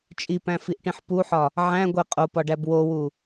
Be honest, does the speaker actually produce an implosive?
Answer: no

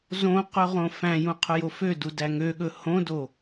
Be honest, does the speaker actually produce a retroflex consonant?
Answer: no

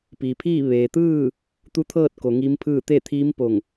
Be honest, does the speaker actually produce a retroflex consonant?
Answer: no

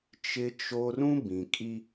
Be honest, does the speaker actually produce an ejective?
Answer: yes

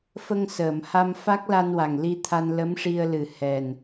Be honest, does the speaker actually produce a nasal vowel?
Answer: no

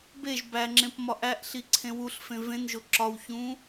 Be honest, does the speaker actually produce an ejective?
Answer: no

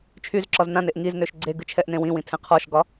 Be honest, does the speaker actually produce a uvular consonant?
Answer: yes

